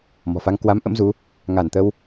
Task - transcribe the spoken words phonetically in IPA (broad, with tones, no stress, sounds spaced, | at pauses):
m ɔ̤˨˩ f a˧ ŋ k w a˨˦ m ʔ ə̰˧˥ m z u˨˦ | ŋ a˧˩ n t̪ ə˧ w